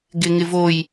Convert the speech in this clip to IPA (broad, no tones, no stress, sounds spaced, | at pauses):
ɡ ɪ ŋ ɪ v o j